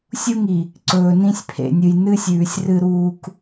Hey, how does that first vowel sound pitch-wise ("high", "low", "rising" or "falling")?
high